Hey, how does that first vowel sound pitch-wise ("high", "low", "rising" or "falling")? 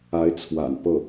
rising